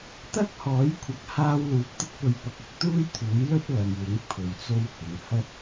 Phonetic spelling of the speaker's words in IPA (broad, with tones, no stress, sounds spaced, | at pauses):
t̪ ɐ˥ k̚ h ɔː˨˥ j kʷʰ ɐ˨˥ k̚ h aː˥ w l uː˧ p̚ t̪ ɪ˥ k̚ p ɵ˧ ɥ p ɐ˧ k̚ ʊ˧ k̚ t̪ uː˥ j t̪ʰ uː˨˥ j l ɵ˥ t̚ l ɐ˨ m w ɪ˨˥ ŋ pʰ ɵ˨ ɥ t͡s o˥ w h ɪ˨˥ ŋ h ɐ˥ t̚